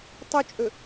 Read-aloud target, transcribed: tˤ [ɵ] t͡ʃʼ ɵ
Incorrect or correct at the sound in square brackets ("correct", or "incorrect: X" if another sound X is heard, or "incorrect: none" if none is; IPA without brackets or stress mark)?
incorrect: o